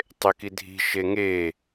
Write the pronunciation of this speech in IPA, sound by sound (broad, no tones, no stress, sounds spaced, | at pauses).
tˤ e k i dʱ i̤ ʃ e ŋ e